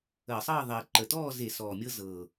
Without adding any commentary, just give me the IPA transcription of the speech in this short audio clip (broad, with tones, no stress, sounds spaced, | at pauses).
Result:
əː˧˩˧ sˤ ɤː˥˨ ðˤ iː˨˩ ǃ ə˨˩ t ɔː˥˨ z e˧˩˧ s ɔː˨˩ mʲ ɤ˦ z ɤː˨˩